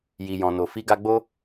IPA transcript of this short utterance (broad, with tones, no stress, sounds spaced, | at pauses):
j i˨ j ɔ̃˨ n o˨ f i˨˦ ɡ a˧ ɡ͡b o˦